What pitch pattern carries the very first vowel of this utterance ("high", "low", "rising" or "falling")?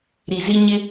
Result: low